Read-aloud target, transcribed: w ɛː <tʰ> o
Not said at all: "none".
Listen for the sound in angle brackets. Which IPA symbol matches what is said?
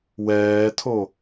tʰ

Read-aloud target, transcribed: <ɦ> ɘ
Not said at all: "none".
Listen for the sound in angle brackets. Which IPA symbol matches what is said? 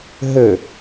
ɦ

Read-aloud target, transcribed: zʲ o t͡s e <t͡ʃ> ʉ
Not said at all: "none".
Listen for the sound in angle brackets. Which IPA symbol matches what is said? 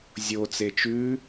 t͡ʃ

